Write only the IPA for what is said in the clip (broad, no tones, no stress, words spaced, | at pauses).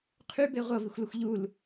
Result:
qʰybe ʁʷʌvixʷləxʷ ʎul